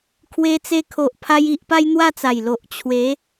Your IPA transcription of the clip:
kʰ w e˧ t͡s e˧ kʰ o˨ ʔ pʰ a˦ j i˦ ʔ p a˦ j n̪ w a˥˧ t͡s a˨˩ j l o˨ ʔ t͡ɕʰ w e˨˦

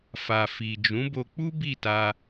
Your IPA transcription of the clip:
f a˨ f i˨ d͡ʒ ũ˨˦ b o˧ k͡p u˦ b i˦˨ t a˧

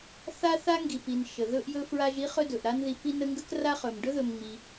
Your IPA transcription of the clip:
θ a˥ θ a˥ ŋ ɡ i˨ p i˨ n ʃ ə˩ ð ɵ˦ ʔ j ɵ˦ f ɹ a˦ ʒ i˥ χ ɵ˦ d ɵ˩ ʔ ɾ a˦ n ð i˨ p i˦ n ə˦ ŋ ɡ ə˥ k r a˥ χ ɵ˩ m ɖ ɵ˥ ð ɵ˨ m ŋ͡m i˩

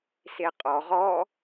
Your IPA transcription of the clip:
s e qʼ ɔ ʁ ɔ

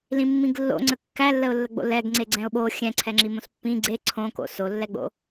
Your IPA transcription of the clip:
l ĩ mː ĩ ɡ lː o̰ ŋ͡ǀ ə kː æ lː ə ʊ̯ lː ə ɡ͡b o̰ l ɛ ɡ ŋ͡ǀ e ɡ͡ǀ ɛ̃ ʊ̯ ɓ o xʲ ɛ̃ ǀʰ ɛ ŋ͡ǁ i m õ s pː ĩ ɡ͡ǀ e ǀʰ õ k o̰ s o lː ɛ ɡ͡b o̰

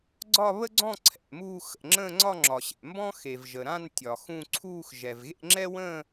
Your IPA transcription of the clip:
ɡ͡ǀ ɒ˥˧ β ə˥ ɡ͡ǀ ɔ̃˥˧ ǀʰ ɛ̰˨ m uː˥˧ x ə̰˨ ŋ͡ǁ ə̃ː˥˧ ŋ͡ǀ ɒ˥˧ ŋ͡ǁ ɒ˨ ɕ ɛ̰˨ m b ɔ̃˥ x e˨ v ʒ ə˨ ɾ ã˥˧ n tʲ ɒ˨ x ũ˥˧ ǀʰ uː˥˧ x ʒ ɛ˨ v ɣ ḛ˥˧ ŋ͡ǁ ɛ˥ w ə̃ː˥˧

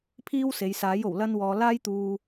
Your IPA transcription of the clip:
pʰ iː˥ w s e˨˧ j s aː˨˥ j o˨˩ w l ɐ˥ n w ɔː˧ l aː˥ j t̪ uː˧

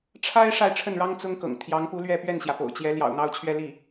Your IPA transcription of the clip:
ʈ͡ʂʰ a˥ ɪ̯ ʂ a˥˧ ɪ̯ ʈ͡ʂʰ ə˥˩ n ɻ ɑ˥ ŋ t͡s ʊ˥ ŋ k ɤ̰˨˩ ŋ t̪ʰ j ɑ˧˥ ŋ p u˧˥ l ɥ ɛ˥˧ p ɥ ɛ˥˩ n ɕ j ä˩ p o̰˨˩ ʊ̯ t͡ɕ j ɛ˧˥ l j ɑ̰˨˩ ʊ̯ n̪ ɑ˥˧ ʊ̯ t͡ɕʰ ɥ ɛ˥˧ l i˥˩

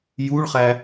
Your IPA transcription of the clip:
j u ɭ χ æ

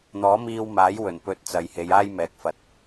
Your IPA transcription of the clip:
n̪ ɔː˨˥ m iː˧ w m aː˨˥ j w ɵ˨˩ n p ɵ˧ t̚ t͡s ɐ˨ j h e˨˧ j aː˥ j m ɛː˨˥ k̚ f ɐ˨˥ t̚

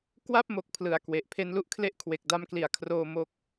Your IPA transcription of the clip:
k w a˥˩ p̚ m o˨˩ k̚ pʰ l ɯ˨˩ a̯ k w e˨˩ ʔ pʰ e˦˥ n l u˦˥ ʔ kʰ l e˥˩ ʔ kʰ w e˨˩ k̚ d a˧ m k l i˩˦ a̯ kʰ r oː˧ m o˦˥ k̚

